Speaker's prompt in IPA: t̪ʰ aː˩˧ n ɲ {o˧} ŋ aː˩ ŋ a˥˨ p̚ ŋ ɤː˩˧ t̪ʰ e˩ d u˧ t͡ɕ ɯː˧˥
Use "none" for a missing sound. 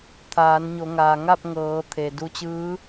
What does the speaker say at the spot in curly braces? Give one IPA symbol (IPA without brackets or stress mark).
o˩˧